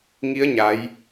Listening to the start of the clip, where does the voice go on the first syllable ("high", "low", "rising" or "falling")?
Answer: rising